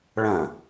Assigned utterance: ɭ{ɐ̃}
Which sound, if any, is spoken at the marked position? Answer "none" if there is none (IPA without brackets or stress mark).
ɐ̃